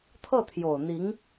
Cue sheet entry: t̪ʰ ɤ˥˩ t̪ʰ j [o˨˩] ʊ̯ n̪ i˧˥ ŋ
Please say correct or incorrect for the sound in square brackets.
correct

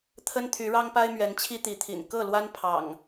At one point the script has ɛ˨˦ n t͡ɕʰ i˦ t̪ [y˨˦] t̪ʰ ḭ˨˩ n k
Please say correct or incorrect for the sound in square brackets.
incorrect: i˨˦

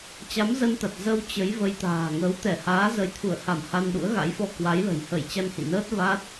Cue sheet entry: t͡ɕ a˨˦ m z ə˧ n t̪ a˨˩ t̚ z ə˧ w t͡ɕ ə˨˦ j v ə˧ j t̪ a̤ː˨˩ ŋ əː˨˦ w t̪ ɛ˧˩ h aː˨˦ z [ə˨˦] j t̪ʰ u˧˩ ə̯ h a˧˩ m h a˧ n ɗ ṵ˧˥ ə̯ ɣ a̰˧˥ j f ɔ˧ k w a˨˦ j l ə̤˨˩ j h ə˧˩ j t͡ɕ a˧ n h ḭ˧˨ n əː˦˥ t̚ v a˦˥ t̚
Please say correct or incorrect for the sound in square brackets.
correct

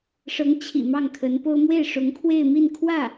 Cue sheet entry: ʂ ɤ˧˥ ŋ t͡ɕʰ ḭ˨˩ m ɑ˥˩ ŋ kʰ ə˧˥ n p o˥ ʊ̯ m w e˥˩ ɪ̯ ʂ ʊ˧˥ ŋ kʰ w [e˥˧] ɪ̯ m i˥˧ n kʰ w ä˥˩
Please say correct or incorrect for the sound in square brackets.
correct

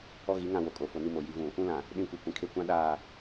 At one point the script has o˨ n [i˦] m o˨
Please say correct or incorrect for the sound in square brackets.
correct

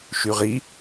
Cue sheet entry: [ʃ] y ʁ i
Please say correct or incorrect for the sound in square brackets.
correct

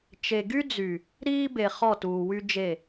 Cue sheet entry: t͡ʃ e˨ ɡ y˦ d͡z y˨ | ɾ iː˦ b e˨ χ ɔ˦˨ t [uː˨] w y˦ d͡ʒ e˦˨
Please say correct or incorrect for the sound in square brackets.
correct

